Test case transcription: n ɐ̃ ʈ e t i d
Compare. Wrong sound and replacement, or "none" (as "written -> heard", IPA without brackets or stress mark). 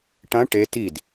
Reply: n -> ʈ